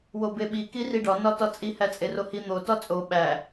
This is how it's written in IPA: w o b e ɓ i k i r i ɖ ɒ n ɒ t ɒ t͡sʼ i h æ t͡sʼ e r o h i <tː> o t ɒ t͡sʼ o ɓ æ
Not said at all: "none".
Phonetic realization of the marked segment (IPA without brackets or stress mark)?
n̪